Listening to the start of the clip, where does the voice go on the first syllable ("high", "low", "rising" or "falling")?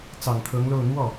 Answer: low